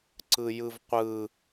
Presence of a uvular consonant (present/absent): present